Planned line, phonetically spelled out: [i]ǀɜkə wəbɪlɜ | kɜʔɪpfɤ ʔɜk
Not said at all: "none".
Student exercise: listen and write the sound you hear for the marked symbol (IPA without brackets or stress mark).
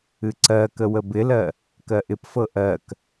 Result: ɨ